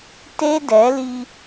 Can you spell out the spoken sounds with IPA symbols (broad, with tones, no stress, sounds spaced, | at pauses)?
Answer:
t e˦ d ɛ˨˦ l i˦